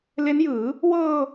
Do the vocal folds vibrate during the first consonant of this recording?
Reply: yes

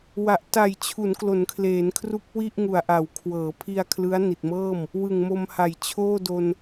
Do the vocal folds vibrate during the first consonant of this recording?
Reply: yes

